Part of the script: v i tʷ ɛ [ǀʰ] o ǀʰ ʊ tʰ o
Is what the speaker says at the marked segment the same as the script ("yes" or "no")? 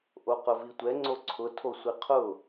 no